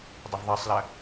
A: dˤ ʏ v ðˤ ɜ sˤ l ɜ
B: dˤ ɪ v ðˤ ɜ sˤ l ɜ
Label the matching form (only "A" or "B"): B